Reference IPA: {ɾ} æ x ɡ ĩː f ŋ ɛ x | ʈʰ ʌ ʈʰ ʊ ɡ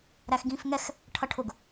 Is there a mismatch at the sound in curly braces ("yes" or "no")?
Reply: no